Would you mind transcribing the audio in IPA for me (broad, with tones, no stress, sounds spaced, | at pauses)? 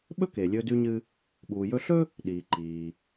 ɓ ɵ˥ k e˩ lʲ ɵː˧ d ʉ˧ ɲ ɨ˧ | ɓ uː˩ j ɵ˧ ɬ ɵ˥ | ɗ iː˩ ǃ iː˩